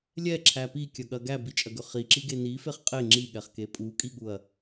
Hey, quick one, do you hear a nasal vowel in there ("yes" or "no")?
no